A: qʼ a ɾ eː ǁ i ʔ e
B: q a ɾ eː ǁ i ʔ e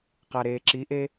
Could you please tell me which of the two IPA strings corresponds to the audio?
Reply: B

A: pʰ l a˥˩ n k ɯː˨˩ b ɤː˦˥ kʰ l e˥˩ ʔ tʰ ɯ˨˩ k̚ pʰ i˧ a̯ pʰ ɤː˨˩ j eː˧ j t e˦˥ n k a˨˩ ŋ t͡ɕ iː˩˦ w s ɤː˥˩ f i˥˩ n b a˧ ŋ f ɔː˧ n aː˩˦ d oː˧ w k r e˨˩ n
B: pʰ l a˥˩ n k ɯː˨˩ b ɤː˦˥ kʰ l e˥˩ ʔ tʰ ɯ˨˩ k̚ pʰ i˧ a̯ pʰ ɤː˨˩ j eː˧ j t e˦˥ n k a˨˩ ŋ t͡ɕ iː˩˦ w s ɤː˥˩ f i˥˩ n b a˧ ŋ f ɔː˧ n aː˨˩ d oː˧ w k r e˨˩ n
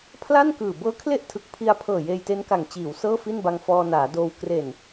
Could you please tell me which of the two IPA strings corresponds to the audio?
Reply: A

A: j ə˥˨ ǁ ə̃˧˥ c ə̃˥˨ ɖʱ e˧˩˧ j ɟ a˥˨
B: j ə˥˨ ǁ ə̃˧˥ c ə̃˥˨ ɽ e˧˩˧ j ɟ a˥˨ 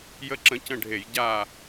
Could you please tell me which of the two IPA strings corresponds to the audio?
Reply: A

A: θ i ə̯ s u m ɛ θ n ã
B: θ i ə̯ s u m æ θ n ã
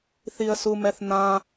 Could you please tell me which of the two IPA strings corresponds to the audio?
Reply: A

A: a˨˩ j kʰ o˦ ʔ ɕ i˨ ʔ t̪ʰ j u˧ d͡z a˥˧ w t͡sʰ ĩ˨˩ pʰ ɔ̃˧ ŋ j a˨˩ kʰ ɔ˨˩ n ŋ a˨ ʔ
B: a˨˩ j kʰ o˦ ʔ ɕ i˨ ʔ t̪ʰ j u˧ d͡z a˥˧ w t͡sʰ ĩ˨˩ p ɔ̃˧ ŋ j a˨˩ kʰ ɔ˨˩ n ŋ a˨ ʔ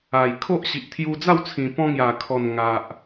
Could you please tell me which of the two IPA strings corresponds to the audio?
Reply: B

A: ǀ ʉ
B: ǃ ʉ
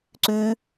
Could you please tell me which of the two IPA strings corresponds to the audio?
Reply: A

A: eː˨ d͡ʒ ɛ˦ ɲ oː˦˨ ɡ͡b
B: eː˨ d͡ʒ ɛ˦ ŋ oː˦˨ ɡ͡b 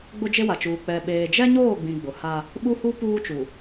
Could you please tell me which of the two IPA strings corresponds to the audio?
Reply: A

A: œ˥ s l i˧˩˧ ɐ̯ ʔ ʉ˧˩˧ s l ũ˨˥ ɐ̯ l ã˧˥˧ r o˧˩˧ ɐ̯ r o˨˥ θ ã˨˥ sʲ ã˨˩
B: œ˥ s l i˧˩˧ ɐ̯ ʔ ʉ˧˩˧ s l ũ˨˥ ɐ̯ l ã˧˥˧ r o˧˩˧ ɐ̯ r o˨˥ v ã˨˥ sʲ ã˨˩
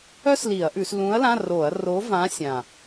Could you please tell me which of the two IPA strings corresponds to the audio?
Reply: B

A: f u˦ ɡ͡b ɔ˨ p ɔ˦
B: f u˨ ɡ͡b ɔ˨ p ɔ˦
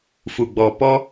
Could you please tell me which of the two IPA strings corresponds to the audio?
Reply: B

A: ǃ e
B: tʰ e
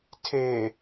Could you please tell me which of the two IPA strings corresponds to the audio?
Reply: B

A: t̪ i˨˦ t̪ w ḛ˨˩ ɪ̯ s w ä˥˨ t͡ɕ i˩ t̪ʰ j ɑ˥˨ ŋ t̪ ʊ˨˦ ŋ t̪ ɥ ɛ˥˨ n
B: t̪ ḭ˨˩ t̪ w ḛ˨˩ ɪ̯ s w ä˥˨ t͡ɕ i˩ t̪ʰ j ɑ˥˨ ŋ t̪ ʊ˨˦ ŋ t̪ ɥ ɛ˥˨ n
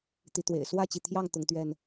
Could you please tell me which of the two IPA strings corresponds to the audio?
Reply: A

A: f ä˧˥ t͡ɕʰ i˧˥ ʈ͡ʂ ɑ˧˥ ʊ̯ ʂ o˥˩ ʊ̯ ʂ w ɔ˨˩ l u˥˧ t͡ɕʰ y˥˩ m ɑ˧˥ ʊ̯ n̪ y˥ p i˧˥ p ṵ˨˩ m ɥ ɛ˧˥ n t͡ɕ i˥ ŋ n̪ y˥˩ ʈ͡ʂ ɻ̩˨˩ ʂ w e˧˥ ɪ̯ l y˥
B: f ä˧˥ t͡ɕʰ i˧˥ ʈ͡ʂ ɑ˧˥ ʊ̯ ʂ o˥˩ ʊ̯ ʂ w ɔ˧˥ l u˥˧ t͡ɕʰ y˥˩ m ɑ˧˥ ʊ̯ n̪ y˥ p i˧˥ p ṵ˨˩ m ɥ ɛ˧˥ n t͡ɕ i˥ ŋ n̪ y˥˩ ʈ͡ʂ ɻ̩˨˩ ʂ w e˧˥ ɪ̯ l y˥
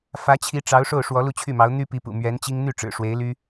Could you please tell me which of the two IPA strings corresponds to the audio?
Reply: B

